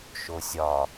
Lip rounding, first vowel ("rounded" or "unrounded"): rounded